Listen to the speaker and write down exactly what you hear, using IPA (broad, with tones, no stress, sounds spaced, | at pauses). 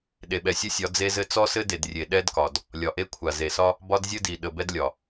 ɗ e˨ ɓ ɛ˨ sʲ ɘ˦ sʲ ɒ˨˦ d͡z e˦ z ɘ˦ t͡s ɔ˦ s ɘ˦ d e˨ d rʲ e˨ ɗ ɛ˦ d k ɒ˨ d | lʲ ɒ˨ ʔ e˦ kʷʰ a˨ z e˨ s ɒ˦ | b ɒ˦ d zʲ ɘ˦ d i˨ ɗ ə˨ b ɛ˦ d lʲ ɒ˨